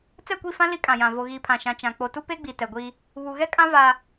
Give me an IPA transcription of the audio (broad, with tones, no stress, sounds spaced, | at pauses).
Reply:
t͡s ɛ˦˨ kʷ i˦˨ f ã˦ l i˦ kʼ ã˨ j ã˨ v o˨ ɣ iː˨ pʰ ã˨ ʃ ã˨ t͡ʃ ã˨ k͡p o˨ t u˦ p e˦ ɡ͡b i˨ t ɛ˨ ɡʷ i˦ | β u˨ ɣ ɛ˦ kʼ ã˦ v a˦